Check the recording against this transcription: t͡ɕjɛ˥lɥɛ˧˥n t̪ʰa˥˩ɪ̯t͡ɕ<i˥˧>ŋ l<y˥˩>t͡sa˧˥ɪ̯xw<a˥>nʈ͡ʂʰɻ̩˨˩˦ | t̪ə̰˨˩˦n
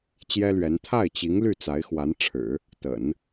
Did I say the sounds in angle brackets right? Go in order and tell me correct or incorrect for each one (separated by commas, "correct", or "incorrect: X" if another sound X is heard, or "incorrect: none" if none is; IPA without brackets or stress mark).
incorrect: i˧˥, correct, incorrect: a˧˥